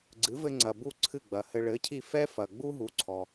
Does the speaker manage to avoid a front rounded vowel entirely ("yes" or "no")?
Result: yes